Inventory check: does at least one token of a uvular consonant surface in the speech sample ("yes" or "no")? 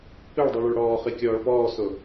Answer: yes